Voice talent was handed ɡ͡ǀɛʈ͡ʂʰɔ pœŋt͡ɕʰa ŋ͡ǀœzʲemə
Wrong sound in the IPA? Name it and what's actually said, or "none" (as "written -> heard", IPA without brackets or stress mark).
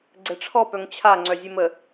none